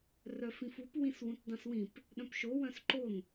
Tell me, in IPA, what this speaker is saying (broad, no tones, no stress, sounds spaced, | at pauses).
r œ f ĩ f u p w ĩ s w ũ t dˤ œ̃ s w ĩ p | ɗ œ̃ p ʃ o w œ̃ s ǃ o n